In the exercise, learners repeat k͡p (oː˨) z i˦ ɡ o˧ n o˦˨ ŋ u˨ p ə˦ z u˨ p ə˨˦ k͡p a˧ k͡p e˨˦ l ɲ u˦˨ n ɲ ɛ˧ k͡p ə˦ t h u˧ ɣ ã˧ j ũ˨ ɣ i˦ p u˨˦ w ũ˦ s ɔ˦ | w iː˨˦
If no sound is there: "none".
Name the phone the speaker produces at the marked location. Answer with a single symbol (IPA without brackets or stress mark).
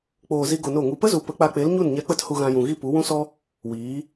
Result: oː˨